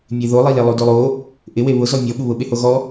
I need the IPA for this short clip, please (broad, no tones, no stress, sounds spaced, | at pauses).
mʲ e ð o lˠ i l e lˠ o d o lˠ o | ʔ ɪ w e β ʊ z ɔ mʲ ɔ ɓ u β ʊ ɓ e h o ɣ ɔ